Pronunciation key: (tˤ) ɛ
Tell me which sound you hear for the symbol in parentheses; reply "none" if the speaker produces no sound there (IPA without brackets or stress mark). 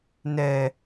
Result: n